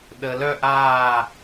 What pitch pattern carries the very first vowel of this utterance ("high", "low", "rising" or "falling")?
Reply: low